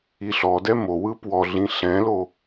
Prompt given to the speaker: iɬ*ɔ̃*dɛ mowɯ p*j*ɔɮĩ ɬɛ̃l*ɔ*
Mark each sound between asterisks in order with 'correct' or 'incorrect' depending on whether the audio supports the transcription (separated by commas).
incorrect, incorrect, incorrect